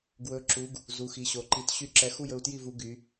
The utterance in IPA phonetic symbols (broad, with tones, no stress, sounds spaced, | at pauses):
ɡ w ɵ˧˥ ǁ u˧˥ ɡ | z u˧˥ x i˧˥ ɕ o˧˥ ǃ i˥˧ t ɕ y˥˧ ǁ ɛ˧˥ x u˥˧ j ɵ˥˧ u̯ t j i˥˧ v u˧˥ ɡ y˧˥